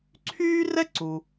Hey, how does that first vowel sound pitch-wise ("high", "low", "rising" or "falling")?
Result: high